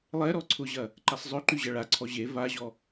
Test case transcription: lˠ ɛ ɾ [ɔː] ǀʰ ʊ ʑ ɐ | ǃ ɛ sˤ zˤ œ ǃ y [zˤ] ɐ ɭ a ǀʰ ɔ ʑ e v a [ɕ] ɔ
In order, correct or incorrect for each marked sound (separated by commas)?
incorrect, incorrect, incorrect